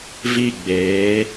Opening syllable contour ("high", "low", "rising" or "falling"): falling